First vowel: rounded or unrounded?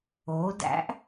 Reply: rounded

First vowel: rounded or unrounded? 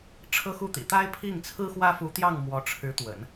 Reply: unrounded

